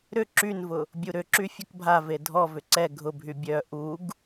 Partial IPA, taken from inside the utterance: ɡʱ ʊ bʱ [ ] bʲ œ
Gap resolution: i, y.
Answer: y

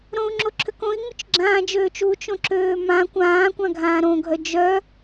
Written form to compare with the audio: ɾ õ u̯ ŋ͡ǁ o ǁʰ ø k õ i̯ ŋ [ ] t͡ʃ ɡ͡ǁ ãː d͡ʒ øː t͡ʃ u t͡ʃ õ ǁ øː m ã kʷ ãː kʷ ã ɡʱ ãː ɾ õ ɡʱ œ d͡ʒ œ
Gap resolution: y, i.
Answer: y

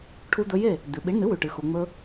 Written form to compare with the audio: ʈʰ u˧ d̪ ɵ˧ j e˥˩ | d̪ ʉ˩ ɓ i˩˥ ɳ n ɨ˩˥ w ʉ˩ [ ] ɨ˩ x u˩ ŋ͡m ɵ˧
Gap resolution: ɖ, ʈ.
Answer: ʈ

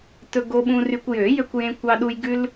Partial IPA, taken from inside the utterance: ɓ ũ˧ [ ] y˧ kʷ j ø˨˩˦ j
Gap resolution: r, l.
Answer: r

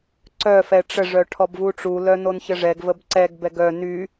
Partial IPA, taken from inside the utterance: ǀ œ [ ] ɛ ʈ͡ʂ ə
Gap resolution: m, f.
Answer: f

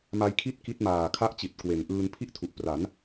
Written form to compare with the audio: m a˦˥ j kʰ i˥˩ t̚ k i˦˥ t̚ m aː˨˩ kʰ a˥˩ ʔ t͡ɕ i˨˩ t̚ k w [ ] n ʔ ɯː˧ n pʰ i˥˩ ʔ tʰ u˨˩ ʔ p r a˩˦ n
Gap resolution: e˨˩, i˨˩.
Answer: e˨˩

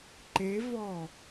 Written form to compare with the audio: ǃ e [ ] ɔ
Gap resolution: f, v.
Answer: v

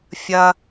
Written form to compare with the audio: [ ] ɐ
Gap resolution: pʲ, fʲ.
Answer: fʲ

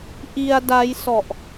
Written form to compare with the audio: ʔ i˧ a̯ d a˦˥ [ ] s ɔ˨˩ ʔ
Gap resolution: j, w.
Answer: j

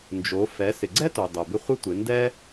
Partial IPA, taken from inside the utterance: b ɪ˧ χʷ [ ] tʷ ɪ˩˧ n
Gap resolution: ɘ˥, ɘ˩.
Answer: ɘ˥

